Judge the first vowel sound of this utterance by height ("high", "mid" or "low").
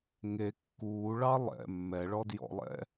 mid